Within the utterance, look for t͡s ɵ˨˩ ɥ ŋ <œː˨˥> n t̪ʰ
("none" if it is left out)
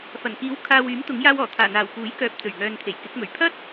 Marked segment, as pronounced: œː˨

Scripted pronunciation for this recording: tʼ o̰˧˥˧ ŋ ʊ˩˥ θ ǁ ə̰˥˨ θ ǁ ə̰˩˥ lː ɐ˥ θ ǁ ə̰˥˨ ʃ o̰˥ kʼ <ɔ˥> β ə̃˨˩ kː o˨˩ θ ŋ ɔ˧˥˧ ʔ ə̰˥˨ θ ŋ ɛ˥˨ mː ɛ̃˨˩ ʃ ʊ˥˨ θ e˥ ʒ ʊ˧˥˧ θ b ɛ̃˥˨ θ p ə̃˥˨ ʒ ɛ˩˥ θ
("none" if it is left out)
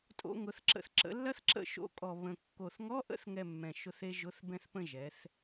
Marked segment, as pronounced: ɔ˨˩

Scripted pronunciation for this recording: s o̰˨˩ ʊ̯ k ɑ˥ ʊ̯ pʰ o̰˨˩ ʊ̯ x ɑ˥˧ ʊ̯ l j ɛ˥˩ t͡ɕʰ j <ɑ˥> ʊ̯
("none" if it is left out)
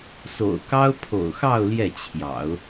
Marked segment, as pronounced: ɑ̰˨˩˦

